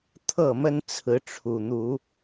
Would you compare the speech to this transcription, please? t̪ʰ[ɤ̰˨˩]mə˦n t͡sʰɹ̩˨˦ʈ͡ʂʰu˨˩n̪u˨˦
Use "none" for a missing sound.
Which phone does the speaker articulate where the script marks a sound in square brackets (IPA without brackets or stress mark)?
ɤ˥˨